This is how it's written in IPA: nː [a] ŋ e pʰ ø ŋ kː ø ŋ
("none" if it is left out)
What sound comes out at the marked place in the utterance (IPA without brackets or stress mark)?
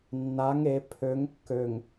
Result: a